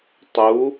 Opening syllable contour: rising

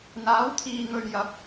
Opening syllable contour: rising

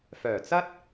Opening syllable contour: low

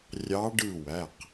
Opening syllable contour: rising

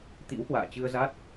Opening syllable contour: rising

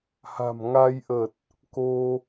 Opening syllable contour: low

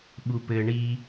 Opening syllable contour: low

